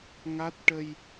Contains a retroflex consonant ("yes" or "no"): yes